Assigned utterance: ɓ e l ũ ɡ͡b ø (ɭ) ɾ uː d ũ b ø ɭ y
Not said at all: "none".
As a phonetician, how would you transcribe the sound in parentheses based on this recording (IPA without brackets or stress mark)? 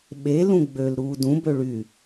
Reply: l